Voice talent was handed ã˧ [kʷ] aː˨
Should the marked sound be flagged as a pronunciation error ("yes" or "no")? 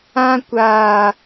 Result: no